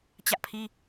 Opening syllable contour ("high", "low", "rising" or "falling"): high